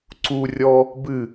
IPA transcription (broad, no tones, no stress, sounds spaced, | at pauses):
ǀ u rʲ ɔ | b ɨ